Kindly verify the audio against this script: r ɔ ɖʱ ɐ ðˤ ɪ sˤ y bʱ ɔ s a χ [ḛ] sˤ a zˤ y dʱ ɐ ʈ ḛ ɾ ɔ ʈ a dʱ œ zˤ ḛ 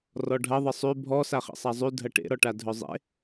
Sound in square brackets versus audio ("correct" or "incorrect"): correct